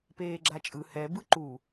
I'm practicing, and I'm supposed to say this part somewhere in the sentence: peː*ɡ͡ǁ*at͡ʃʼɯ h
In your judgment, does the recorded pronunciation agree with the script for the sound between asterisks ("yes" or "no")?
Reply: yes